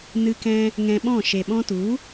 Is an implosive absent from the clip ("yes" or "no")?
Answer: no